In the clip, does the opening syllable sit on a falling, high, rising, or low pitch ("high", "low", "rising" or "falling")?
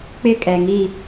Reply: falling